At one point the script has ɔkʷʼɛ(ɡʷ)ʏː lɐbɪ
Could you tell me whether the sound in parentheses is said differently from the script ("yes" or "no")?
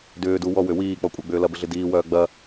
yes